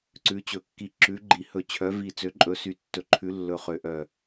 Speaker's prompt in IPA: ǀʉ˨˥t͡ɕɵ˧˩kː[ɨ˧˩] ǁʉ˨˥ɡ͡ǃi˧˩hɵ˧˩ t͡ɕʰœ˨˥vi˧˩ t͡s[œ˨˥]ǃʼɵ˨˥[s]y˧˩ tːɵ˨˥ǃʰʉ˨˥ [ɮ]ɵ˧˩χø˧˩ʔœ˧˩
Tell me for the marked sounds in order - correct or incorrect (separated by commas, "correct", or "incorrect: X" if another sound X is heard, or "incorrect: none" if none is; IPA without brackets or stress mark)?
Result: incorrect: i˧˩, incorrect: ø˨˥, correct, incorrect: lː